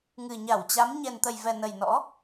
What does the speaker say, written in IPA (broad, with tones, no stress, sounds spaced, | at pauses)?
ŋ ɨ˨˩ ɲ a˧˩ w t͡ɕ a˨˦ m ɲ ɛ˨˩ n t̪ ə˨˩ j v ɛ˨˩ n ə˨˩ j n ɔ̰˧˥